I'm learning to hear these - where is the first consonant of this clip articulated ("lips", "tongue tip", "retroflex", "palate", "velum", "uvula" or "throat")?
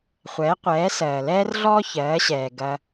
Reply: uvula